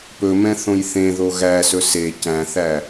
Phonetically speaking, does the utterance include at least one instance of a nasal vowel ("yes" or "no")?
yes